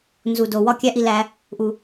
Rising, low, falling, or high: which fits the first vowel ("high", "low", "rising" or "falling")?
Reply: low